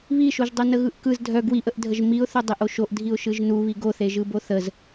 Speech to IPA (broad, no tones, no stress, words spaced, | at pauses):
βiʃoʒdˤœ nəɣɯʔkɯz dʱœ ɡwiʔəʔdʱəʒ miʊ̯θo dˤeʔoʃoʔ dʱiʊ̯ʃɯʒnuβi ɡoθeʒɯbo θəz